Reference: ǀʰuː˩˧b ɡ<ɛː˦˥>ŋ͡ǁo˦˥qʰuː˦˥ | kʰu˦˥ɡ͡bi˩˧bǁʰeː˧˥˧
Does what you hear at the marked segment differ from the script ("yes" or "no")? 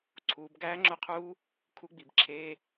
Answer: yes